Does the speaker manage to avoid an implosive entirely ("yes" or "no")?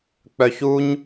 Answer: yes